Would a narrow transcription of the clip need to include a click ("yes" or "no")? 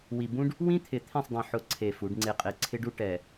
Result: yes